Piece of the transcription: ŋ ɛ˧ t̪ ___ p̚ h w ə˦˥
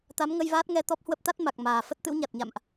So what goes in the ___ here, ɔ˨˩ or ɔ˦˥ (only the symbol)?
ɔ˦˥